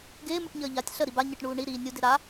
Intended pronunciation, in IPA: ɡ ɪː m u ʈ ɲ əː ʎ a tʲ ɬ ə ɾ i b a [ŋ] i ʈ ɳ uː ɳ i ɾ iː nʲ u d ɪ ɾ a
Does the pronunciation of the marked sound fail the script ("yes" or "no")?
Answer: yes